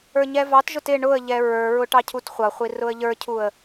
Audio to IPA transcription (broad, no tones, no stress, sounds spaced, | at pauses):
ə˞ ɲ ɛ v ɑ t ʒ ʊ t ɪ ɳ ʊ ə̯ ʎ ɛ ɹ ə˞ ɹ ʊ ʈ ɑ cʰ u t χʷ ʌ χʷ i r ʊ ə̯ ʎ ə˞ cʰ u ə̯